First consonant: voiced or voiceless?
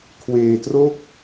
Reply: voiceless